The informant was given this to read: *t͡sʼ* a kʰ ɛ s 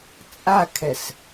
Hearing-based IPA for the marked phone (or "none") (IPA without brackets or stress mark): t͡sʼ